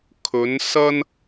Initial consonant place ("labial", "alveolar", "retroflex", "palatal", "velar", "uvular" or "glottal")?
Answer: velar